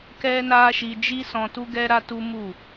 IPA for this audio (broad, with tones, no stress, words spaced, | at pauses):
kɛ˦na˦ʃi˧ d͡ʒi˦sɔ̃˧tu˦ ɡɛ˦ɾa˦ tu˦ mu˦˨